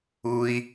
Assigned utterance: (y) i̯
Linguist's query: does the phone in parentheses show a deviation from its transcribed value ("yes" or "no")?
yes